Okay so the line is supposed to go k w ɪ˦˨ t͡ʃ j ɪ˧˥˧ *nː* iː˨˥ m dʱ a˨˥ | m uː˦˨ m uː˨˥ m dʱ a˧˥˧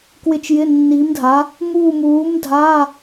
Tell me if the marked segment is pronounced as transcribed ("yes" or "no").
yes